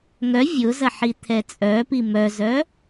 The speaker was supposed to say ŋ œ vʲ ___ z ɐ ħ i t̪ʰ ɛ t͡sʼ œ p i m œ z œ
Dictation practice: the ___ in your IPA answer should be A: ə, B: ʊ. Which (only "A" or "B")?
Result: B